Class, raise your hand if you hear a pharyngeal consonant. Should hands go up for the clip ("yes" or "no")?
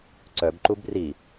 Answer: no